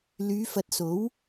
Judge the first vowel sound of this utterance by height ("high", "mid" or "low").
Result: high